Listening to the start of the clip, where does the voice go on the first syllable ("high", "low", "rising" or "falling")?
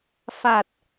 low